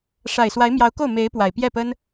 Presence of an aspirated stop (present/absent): absent